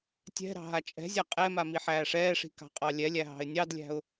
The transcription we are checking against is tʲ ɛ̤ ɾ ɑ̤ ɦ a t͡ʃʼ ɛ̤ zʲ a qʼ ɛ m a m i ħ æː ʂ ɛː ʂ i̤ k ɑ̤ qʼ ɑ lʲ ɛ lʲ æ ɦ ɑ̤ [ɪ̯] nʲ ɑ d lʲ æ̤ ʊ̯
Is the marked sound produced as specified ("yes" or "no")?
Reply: yes